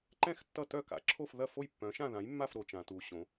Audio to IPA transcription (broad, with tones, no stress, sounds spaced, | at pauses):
ǃ ɛ̃˥˧ x tː ʌ˥˩ t œ˥˩ k a̰˩˥ ǁʰ o˥˩ f ð ɐ˥˩ f o˥˩ j pː œ̃˩˥ ʃ ã˥˩ ð ã˩˥ j mː a˥˩ f ɾ o˩˧ t͡ʃ ã˩˧ t u˩˧ ɕ õ˩˧